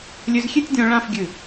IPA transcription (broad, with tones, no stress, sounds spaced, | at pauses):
lʲ ø˧ z xʲ e˥˧ tʲ dʲ ɔ̃˧ ɭ ã˥˧ f ɡʲ ɨ˧˩